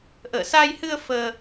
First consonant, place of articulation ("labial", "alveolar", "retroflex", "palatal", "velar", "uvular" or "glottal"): glottal